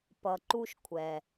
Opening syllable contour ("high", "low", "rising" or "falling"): low